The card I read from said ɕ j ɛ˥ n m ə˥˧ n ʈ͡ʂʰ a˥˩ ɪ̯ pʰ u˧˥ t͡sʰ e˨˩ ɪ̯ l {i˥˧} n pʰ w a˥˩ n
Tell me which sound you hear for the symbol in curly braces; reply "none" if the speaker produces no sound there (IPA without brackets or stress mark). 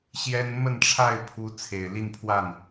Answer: i˥˧